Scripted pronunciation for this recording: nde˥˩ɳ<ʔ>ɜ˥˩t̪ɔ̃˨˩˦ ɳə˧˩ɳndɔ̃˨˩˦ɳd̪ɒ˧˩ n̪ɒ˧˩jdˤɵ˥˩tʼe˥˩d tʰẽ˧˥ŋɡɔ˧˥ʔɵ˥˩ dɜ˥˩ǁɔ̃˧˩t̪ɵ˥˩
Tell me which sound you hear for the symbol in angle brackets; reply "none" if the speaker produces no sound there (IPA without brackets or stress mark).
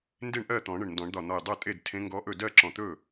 ʔ